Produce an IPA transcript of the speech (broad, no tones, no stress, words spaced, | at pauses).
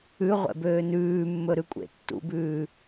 ʉ ʁʷɛ̰bøːnʉːmːɵ ɾʉkʷʼḛtːṵbʉː